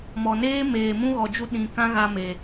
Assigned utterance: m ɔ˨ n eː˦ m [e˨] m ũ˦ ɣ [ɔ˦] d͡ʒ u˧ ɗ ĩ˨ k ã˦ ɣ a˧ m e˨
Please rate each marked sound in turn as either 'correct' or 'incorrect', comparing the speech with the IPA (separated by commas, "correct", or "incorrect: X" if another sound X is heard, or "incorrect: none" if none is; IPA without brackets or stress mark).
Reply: incorrect: eː˨, incorrect: ɔ˨